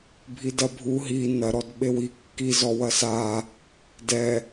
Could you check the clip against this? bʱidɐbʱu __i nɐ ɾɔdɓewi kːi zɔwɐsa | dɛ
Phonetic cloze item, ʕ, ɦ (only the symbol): ɦ